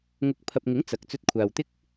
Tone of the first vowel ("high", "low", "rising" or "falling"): rising